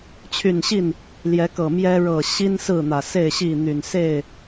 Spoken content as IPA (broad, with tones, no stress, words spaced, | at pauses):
t͡ɕʰy˨˩n ɕi˥˨n | ljɛ˨˦kɤ˨˩ mjɛ˦ ɻɤ˨˩ ɕi˦n sɹ̩˥˨n̪ä˨˩ se˥˨ɪ̯ɕi˥˨ n̪y˨˩nse˥˨ɪ̯